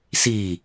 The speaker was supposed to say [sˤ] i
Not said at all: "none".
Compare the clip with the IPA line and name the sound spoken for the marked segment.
s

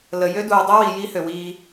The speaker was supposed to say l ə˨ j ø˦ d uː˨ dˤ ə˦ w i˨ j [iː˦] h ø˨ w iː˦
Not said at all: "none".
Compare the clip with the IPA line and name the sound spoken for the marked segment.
i˦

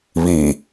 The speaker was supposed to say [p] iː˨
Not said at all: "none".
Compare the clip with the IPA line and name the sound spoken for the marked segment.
β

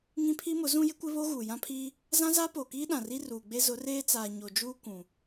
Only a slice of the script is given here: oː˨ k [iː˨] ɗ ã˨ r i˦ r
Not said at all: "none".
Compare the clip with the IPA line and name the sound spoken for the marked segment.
iː˦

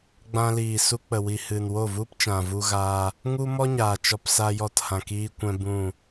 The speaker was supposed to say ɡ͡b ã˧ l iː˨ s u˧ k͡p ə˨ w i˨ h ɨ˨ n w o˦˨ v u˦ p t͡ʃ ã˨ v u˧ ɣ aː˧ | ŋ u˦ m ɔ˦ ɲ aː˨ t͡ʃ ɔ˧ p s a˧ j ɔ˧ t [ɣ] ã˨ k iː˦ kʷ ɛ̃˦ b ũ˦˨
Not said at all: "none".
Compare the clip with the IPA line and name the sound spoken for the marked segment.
h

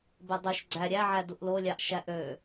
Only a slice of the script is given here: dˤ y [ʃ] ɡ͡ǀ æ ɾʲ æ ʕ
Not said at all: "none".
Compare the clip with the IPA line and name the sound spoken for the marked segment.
ʃ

